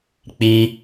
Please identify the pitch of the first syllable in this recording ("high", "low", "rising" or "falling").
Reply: high